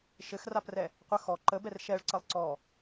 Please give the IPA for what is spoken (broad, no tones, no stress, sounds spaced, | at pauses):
ʃ ɘ x r a p r ɛ | qʷ ə x ɔ ǃ ə b ɛ r ʃ ɛ ɭ ǀ ə lˠ ǀ ɔ